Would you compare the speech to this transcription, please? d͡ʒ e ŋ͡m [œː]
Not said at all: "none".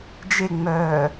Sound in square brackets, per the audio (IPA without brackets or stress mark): œː